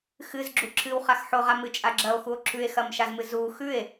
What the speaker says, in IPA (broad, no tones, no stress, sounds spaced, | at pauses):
x ɨ z ɡ͡ǁ u ǁʰ ɨ w χ a x ħ o ʁ a m ɨ t͡ʃʼ a ɡ͡ǁ ɐ o̯ x u o̯ ǁʰ ʉ e̯ x ɐ m ʃ a z m ɨ z u x ʉ e̯